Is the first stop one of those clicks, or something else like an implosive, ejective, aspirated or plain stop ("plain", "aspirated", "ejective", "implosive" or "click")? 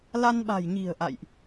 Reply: implosive